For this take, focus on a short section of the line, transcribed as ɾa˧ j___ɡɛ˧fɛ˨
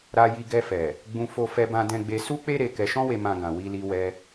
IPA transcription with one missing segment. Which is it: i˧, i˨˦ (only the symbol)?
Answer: i˧